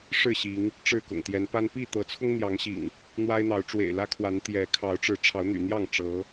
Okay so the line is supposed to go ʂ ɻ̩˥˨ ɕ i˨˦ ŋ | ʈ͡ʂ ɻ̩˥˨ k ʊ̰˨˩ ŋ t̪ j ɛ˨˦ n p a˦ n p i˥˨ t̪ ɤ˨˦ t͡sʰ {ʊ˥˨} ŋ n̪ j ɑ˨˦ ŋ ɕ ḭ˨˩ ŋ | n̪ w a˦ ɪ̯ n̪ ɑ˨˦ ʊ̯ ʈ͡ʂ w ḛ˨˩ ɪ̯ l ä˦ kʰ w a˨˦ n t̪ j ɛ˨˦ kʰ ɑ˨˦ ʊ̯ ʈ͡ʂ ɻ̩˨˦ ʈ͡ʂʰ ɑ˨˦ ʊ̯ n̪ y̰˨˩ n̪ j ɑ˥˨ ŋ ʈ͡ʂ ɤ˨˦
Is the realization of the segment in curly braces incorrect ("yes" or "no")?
yes